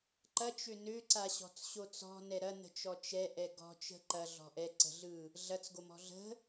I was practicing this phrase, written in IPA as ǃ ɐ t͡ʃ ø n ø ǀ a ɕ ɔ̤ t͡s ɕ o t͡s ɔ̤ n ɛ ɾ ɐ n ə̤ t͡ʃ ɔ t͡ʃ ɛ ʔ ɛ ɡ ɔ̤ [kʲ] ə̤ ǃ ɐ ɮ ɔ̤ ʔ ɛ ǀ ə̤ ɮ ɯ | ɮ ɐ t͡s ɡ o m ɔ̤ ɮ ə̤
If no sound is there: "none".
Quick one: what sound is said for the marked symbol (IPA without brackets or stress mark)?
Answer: t͡ʃ